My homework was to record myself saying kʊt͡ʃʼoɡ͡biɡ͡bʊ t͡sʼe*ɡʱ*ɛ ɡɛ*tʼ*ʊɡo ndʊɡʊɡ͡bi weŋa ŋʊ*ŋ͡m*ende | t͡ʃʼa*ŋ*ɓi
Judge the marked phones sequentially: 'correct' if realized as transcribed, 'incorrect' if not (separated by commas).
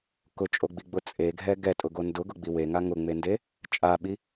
correct, correct, correct, incorrect